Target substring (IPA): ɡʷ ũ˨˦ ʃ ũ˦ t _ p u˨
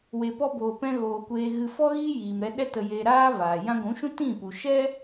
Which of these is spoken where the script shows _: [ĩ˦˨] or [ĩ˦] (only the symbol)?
ĩ˦˨